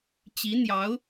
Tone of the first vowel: rising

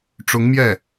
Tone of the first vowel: rising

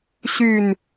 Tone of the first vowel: low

